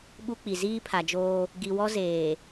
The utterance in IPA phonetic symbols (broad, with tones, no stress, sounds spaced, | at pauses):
ɓ u˦ k͡p i˨ z iː˦ pʰ a˨ d͡ʒ oː˦ | ɡ i˨ w ɔ˦ z eː˨